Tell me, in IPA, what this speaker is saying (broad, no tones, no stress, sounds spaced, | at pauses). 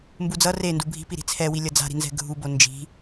m b u d͡z ʌ r e n d u bʱ i̤ p i ɾ i̤ t͡sʰ ɛ w i lʲ ʌ d͡z a̤ ɾ i̤ n z ɛ̤ ɡʱ u b o n d͡ʒ i̤